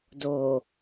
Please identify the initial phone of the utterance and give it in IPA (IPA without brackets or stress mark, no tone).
d